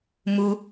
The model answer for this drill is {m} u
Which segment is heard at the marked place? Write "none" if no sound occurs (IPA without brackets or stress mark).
m